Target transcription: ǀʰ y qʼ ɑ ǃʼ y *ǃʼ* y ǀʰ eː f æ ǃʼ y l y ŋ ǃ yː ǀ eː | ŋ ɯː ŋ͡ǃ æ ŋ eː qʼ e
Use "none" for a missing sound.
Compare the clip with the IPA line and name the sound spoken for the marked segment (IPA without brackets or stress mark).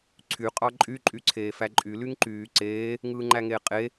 ǃʼ